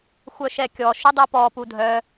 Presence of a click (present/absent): absent